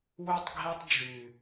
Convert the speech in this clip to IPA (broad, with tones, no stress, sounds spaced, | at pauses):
w y˧ tˤ ɡʱ i˧ tˤ d͡ʒ y˨